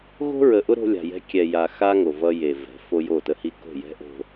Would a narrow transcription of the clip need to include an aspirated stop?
no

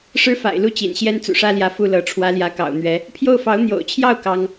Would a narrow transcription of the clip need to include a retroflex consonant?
yes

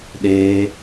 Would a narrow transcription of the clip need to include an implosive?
yes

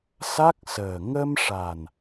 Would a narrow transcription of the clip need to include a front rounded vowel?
no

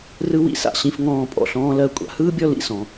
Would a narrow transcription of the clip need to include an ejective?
yes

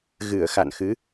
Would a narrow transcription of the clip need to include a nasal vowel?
no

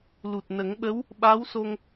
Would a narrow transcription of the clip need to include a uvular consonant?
no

